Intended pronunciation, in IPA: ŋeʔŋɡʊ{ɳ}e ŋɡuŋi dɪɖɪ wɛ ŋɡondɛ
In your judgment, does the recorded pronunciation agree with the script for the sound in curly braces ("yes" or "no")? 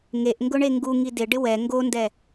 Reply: yes